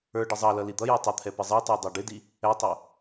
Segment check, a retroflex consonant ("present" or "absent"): present